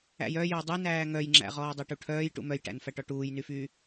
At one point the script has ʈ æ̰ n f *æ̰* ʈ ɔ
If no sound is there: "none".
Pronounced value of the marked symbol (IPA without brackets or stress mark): æ